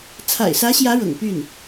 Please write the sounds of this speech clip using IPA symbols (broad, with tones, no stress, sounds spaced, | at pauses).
t͡sʰ a̰˨˩ ɪ̯ s ä˧˥ ɕ j ä˧˥ ɻ ɤ̰˨˩ ŋ p y˥˩ n